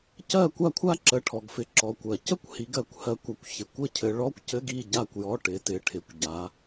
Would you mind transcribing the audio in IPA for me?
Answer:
c ɜ˥˨ kʷ a˥˨ kʷʰ a˥ ǁ ə˨˦ ʈʰ ɔ˨ ɡ f ɪ˨ ǁ ɔ˨ kʷ ɜ˨˩˦ c ə˥ kʷ h i˨˦ ɡ ɜ˨ kʷ h ɜ˨˦ kʷ a˨ kʷ ç ɪ˨ kʷ ɘ˥˨ cʰ ɘ˨˦ ɭ ɔ˧˥˧ kʷ c ɘ˧˥˧ ɡ i˥˨ ɟ a˥˨ kʷ j ɔ˧˥˧ ʈ ɪ˨˦ t ɪ˨ ʈʰ ɪ˨ kʷ ɟ a˨˦

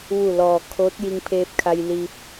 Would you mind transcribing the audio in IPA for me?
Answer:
ʋ u˧˩ l ɔː˩ kʰ oː˧˥ t̚ j i˧ ŋ pʰ eː˧ p̚ kʰ a˧ j l iː˧ p̚

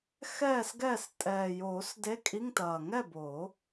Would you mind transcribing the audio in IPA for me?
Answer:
x ɛː˥˨ s ɡ ɛː˥˨ s tʼ ɛː˨˩ j oː˨˩˦ s d e˧˥˧ kʼ i˧˥˧ ŋ t ɐː˨˩ ŋ ɛ˥˨ b oː˨˩˦

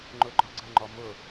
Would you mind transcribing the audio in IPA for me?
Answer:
ŋ͡ǃ ʊ ɡ͡ǃ ɒ ɡ͡ǀ ə ŋ͡ǃ ɔ m ʊ

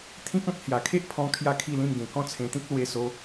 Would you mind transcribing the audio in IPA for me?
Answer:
t̪ʰ ĩ˦ k̚ ã˦ t̚ h j a˨˩ kʰ e˦ ʔ pʰ ɔ̃˧ kʰ j a˥˧ kʰ i˥˧ l ĩ˥˧ m ɡ ẽ˨˩ k ɔ̃˥˧ t͡sʰ ẽ˧ t̪ ĩ˦ k̚ l w e˧ s o˧

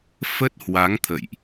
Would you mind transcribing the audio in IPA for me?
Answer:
f ə˦˥ t̚ h w a˨˦ ŋ t̪ʰ ə̰˧˨ j ʔ

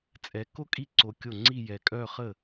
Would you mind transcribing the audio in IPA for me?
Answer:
t͡sʼ ɛ˧˥ k o˥ kʼ i˥˩ ǀ o˧˥ kʲ o˥˩ ŋ͡ǀ i˥˧ j ɛ˧˩ kʼ œ˥˧ χ ə˥˩

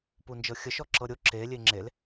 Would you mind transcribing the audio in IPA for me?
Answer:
p u n d͡ʒ ɤ xʲ ə ʃ ɔ ǁ ɤ ɾʲ o ǁ e lʲ e ŋ͡ǁ e l

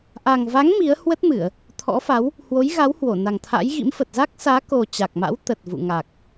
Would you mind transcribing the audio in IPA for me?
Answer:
ʔ a˨˩ ŋ v a˨˦ ŋ m i˨˦ ə̯ h w ə˦˥ t̚ m ɨ˧˩˨ ə̯ | t̪ʰ ɔ̰˧˥ f a˨˦ w | h w o˨˦ j ɣ a˨˦ w h w o˧˩ n a˨˩ ŋ t̪ʰ a̰˧˥ j ɣ ḭ˧˥ m f ə˨˩ t̚ z a˦˥ k̚ s aː˨˦ k o˨˩ t͡ɕ a˨˩ k̚ m a̰˧˥ w t̪ ə˨˩ t̚ v ṵ˧˨ ŋ a˨˩ k̚

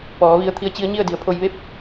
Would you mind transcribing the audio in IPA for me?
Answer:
p ɔː˩˧ ʋ i˧ ə̯ t̪ʰ i˧˥ ə̯ t͡ɕ i˧˥ ə̯ ɲ i˥˨ ə̯ d i˩˧ ə̯ pʰ o˧ j ʋ e˥˨ p̚

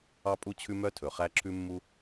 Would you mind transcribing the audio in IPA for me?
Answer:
ɑ˥ pʼ u˥ t͡ɕʰ ʉ˥ m œ˥ tʰ ɵ˩ χ æ˥ ǁʰ ʉ˥ mː u˥

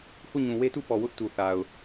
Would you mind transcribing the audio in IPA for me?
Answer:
h u˦˨ ɲ ũ˨ w e˦ t u˦˨ p ɔ˨ w ʊ˦ ʔ t u˨ θ a˨ ʊ̯

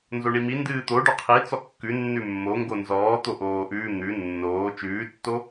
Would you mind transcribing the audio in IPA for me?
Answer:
n z o ɳ i m i n d ɨː t̪ o ɖ o qʰ i t͡s ɔ kː ʉ nː ʉ mː o ŋ ɡ o n z ɔː t̪ o ʔ oː ʔ ʉː n̪ ʉ nː oː t͡ʃ ʉː tː o

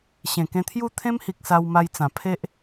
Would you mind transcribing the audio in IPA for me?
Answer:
ɕ ẽ˨˩ k ẽ˧ t̪ʰ j u˥˧ t̪ʰ ẽ˦ m h i˨ k̚ s a˧ w m a˧ j t͡s ã˨˩ pʰ e˦ ʔ

